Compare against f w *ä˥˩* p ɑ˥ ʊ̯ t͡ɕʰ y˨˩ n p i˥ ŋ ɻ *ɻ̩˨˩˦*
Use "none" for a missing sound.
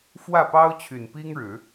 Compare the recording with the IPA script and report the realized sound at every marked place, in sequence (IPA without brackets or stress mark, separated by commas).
ä˥˩, ɻ̩˨˩˦